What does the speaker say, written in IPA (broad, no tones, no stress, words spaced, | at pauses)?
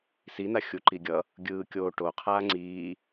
sina xʲuǃiɡʲʌ | ɡʲɯː kʲoː ʈoqʰaː ŋ͡ǀiː